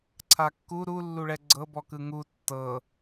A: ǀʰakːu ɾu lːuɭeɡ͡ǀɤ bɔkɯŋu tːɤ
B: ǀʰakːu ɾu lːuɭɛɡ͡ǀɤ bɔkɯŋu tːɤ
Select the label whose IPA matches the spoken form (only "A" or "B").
B